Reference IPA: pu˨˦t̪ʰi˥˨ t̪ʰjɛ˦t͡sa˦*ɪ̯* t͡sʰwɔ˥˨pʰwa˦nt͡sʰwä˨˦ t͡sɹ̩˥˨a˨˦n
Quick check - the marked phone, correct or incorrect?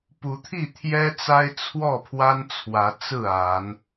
correct